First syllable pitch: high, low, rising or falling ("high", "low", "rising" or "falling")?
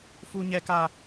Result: high